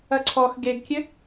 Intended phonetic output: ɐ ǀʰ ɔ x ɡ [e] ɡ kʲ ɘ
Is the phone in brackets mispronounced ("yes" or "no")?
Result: no